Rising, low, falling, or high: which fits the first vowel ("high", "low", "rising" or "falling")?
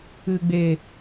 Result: low